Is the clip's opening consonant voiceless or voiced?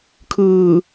voiceless